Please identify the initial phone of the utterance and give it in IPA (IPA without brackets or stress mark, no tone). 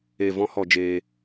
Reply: e